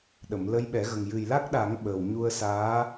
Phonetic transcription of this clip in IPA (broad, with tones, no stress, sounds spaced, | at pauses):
ɗ ə˨˩˨ m l ə˧ j ɓ ɛ˨˩˦ ɣ ə˨˩ ŋ j ɨ˨˩ j l a˦˥ k̚ ɗ a˨˩˦ ŋ ɓ ə˨˩ w ɲ u˧ ə̯ s aː˧˥